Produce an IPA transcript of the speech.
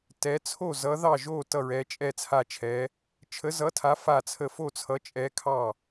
t ɛ˨˥ t͡sʰ o˥˩ z ʌ˨˥ ð ɑ˥˩ ʒ o˥˩ t ʌ˥˩ ɹ ɛ˨˥ t͡ʃʼ ɛ˥˩ t͡sʰ a˥˩ t͡ʃʰ ɛ˨˥ | t͡ʃʰ ə˨˥ z ʌ˨˥ tʰ a˨˥ f a˥˩ t͡sʰ ə˥˩ f o˥˩ t͡sʰ ʌ˨˥ t͡ʃʼ ɛ˨˥ kʰ ɑ˥˩

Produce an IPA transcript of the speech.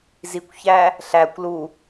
z i kʷ ç æ | ɬ æ kʷ l u

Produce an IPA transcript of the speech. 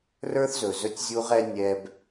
r ə˞˦ θ z ɵ˨ z ɵ˦ tʲ zʲ u˦ ʁ ɛ˦ nʲ ɛ˦ b

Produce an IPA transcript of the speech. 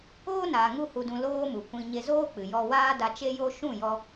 oː˦ n aː˨ ŋ u˦ h u˧ d ũ˧ l oː˦ m u˨ kʷ ĩ˧ ɲ e˧ z oː˦ k͡p ɨ˨ j ɔ˧ w aː˦ d a˧ t͡ʃ e˦ j o˦ ʃ ũ˦˨ j ɔ˧

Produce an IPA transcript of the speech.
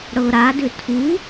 ɽ ɤ ɾ a d ʏ tʰ u

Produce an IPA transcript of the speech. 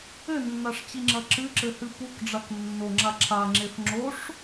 ɘ nː a ʂ t͡ɕ i ŋ͡ǁ ɐ ǁ ɨ ǁ ɘ h ɨ p u k ɖ͡ʐ a k nː o ŋ͡ǁ a ǁʰ a ŋ͡ǁ e f ŋ͡ǁ o ʂ

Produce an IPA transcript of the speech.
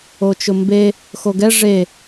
o t͡ʃ ʊ m b e | x o ɡ ɛ ʐ e

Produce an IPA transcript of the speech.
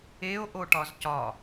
e o̯ ʔ o ʈ ɒ z c ɒ

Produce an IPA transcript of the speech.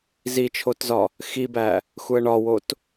z i t͡ʃʰ o t z ɒ | x i b æ | x u ə̯ ɳ ɒ w o t

